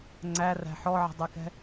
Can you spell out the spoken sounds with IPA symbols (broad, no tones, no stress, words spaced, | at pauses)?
ŋ͡ǀæræ̤ ħɔʕə̤dˤɛkɛ̤